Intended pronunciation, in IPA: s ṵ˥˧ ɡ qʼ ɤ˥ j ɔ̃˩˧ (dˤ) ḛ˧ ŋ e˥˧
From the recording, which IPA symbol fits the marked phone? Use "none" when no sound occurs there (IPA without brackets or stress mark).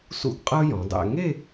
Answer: dˤ